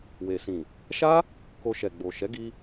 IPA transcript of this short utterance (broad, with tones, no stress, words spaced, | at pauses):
we˨sĩ˨ | ʃa˦ | ko˧ʃɛ˨ ɡ͡bo˨ ʃɛ˨˦ɡi˧